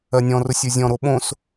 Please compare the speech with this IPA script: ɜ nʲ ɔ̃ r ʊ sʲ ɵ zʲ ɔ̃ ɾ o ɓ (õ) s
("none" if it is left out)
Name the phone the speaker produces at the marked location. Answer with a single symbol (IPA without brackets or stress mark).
õ